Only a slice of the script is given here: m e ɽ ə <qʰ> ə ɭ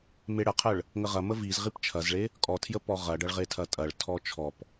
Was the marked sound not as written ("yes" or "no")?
no